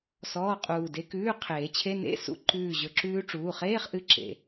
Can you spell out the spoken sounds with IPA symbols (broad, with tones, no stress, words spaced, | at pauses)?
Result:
sɔː˧˥˧qʼuː˧˩de˧˥ kʉː˧˥˧qʰeː˨˩˦t͡ɕʰe˧˥˧ nḛ˧˥˧sṵ˧˥˧ ǃʉː˧˩ʑɵ˨˩˦ǁʉː˧˥ ʈ͡ʂuː˩˧˩χeː˧˥˧χʔɨ˧˥˧ ǁḛ˧˩